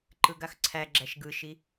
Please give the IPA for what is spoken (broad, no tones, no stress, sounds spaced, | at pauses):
ǃ ɯ ɡ a x ǀʰ æ ɡ͡ǁ æ ʃ ɡ ɯ ʃ i